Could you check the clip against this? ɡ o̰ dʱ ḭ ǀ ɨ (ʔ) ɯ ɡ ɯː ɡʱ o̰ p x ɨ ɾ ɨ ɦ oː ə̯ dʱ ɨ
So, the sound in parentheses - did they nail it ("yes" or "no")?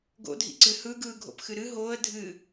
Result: no